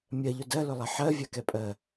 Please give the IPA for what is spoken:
mʲɜʎʊ dɜlʊlˠɛ ħɜvʲakɛpʼɜ

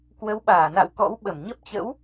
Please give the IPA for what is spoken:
kwə˨˦wɓaː˧˩na̰˧˨wkɔ̰˧˥w ɓə˧˩mɲə˦˥p̚ t͡ɕə̰˧˥w

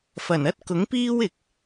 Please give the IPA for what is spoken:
fɐ˨˩nɐ˥t̚ kʊ˨˥ŋpiː˥wɪ˨k̚

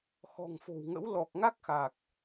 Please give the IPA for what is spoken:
xɔ̤˨˩ŋfo̤˨˩wŋə̰˧˥w lɔ˨˩k̚ŋa˦˥k̚xa˨˩k̚

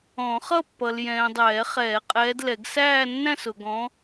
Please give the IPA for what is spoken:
ɔ̃˨˩˦χʌ˥˧pːʌ˨l jɛ̃ː˨dˤɛː˨˩˦χɛː˨˩˦qʼɛː˨˦d lɛ˨˩˦ɡsæː˥˧nːæ̃˥˧sʊ˨ ɡɔ̃˨˦

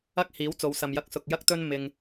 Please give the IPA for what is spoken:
ɐ˥k̚ hiː˨˥wt͡so˨˧wsɐ˨mjɐ˧k̚ sʊ˨k̚ jɐ˥k̚t̪ɵ˥n mɪ˧ŋ

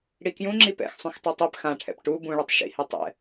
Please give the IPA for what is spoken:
ɽikjũ ŋ͡ǁipɛ̰x sˤũxtˤetˤɛp xãʈʰɛ̰p ʈu bũɭɯtˤ ʃḭhe tˤɛ̰

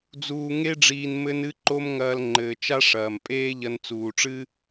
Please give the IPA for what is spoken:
d͡zuː˧ŋe˥ɖ͡ʐiː˧n mɘ˧nɨ˧ǃo˧m ŋɐː˧lŋ͡ǃɘː˩ t͡ʃa˥ʂɐː˩mpʼeː˥ ʎɐ˧nt͡suː˩ʈ͡ʂɨ˥

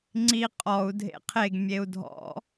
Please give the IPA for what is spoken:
ŋ͡ǀi qʼɔu̯ dʱḛqʰeɡ mʲeu̯dʱɔ̰

